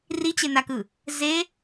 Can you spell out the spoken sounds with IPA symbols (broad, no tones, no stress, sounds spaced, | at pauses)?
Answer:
r i t͡ɕ e n a k ɯ | z e